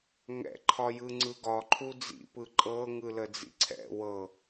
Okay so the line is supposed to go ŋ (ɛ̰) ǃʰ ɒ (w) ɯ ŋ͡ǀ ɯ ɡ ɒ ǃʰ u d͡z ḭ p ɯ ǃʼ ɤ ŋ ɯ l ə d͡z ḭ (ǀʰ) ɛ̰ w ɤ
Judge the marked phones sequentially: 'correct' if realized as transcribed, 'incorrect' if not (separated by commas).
correct, incorrect, correct